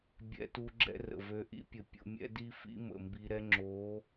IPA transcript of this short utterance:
bʲ ɛ̰˧ t u˧ ɡ͡ǁ ɛ̰˦ r ə̰˨ v ø˧ ʔ ḭ˦ pʲ ə˨ pʲ o̰˧ mʲ ɛ̰˦ d i˦ f ḭ˦ m ə̰˨ m b i˧ ɾ ɛ˦ ŋ͡ǁ o˨˦

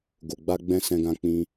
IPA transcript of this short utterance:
ɡ o˨ ɡ͡b a˧ ɡ͡b ɛ̃˧ s ɛ̃˧ ɡ ã˧ k͡p ĩ˧

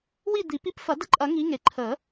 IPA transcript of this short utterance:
w i˦˨ d̪ i˨˩˦ p i˦ p f ɐ˨˩˦ d ə˦ ǃʼ ɐ˨˩˦ ŋ i˨˦ ŋ e˩ ǃʰ ə˨˩˦

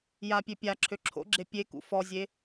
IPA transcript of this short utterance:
j a pʲ ø pʲ a ǁʰ ø ǁʰ o̰ ɡ͡ǁ e pʲ e k ṵ f ɔ zʲ e

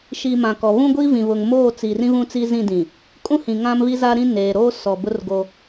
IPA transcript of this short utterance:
ʃ i˨ m ã˨ k ɔ˨ β ũ˦ ɡʷ i˦ v ĩ˨ β ʊ˨ ŋ m oː˦˨ t͡s i˨ r ĩ˦ β ũ˦ t͡s i˦ z ĩ˦˨ d ĩ˨ | kʼ ũ˦ h ĩ˨ ŋ ã˦ m β i˦ z a˦ ɾ ĩ˦ n eː˨ ɾ oː˦ s ɔ˨ b ʊ˦ r ɡ o˦

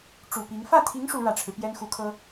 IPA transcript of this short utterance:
ʈ͡ʂ u˨˩ p i˧˥ ŋ f ä˥˩ t̪ʰ i˧˥ ŋ ʂ u˧˥ ɻ ä˨˩ ʈ͡ʂʰ ɻ̩˦ p j ɛ˥ n x u˧˥ kʰ ɤ˥

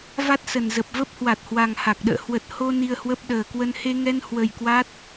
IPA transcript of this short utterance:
v a˦˥ t̚ s ə˨˩ n z ə˨˩ p̚ v ə˦˥ p̚ h w a˨˩ t̚ h w a˨˩ ŋ h a˨˩ k̚ ɗ ə̰ː˧˨ h w ə˨˩ t̚ h o˧ n i˧ ə̯ h w ə˦˥ p̚ ɗ əː˨˩ k w ə˧ n h e˧ ŋ ɛ˧ n h w ə˨˩ j k w a˦˥ t̚

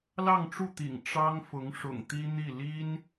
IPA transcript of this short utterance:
l ɑ˥˧ ŋ ʈ͡ʂ u˥˩ t̪ ḭ˨˩ ŋ ʈ͡ʂ ɑ˥ ŋ f ʊ˧˥ ŋ ʂ ʊ̰˨˩ ŋ t̪ i˥ n̪ i˥˩ l i˥ n

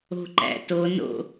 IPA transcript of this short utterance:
o̤ ǃ æ̰ t o n o̰

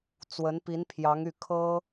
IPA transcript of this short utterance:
t͡s w ə˧˥ n p i˧˥ n pʰ j ɑ˧˥ ŋ y˥˩ kʰ ɤ˥

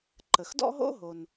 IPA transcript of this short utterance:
ǃ ə˩ x d ɔ̰˥ ɦ o̰˥ ɦ o˩ n

